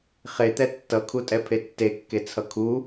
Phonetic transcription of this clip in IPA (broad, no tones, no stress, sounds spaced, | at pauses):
χ e t̪ ɛ tː ʌ kʰ u tʼ ɛ pʰ e tː e kː e t͡sʰ ʌ kʰ u